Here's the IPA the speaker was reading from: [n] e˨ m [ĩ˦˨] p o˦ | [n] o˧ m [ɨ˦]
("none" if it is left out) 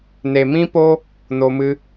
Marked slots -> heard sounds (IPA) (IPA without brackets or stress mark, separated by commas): n, ĩ˦, n, ɨ˦